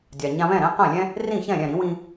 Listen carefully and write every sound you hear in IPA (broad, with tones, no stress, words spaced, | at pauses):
dʲa˩ɲã˧βɛ̃˥˩ ɾɛ̃˥qã˥˩lʲɛ̃˥ | rĩ˥˩çɛ̃˥˩ ɾʲɛ̃˥˩ɾĩ˩˥ wĩ˧